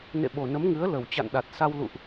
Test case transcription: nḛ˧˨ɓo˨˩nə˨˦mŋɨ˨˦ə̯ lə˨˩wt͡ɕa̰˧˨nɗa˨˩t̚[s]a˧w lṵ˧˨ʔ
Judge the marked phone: correct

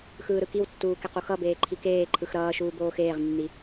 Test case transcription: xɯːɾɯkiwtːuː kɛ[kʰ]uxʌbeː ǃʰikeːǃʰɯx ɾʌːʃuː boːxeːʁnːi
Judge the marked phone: incorrect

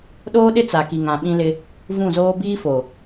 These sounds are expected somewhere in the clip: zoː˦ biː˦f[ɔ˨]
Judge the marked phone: incorrect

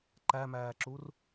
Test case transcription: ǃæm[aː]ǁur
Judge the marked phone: incorrect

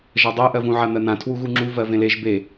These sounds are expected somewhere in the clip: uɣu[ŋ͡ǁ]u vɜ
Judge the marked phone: correct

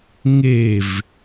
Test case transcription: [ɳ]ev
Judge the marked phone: incorrect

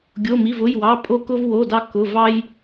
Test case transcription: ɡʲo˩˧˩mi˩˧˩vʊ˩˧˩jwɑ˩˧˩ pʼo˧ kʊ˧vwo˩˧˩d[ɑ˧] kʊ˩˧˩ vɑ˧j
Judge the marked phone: correct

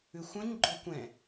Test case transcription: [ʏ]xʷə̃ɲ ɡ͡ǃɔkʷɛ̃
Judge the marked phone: correct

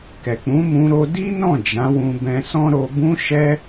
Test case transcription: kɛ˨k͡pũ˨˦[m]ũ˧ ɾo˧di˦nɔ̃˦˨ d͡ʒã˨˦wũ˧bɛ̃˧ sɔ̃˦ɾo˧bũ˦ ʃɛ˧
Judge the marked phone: correct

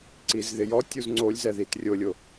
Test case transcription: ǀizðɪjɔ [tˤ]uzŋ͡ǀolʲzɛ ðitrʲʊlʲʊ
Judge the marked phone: incorrect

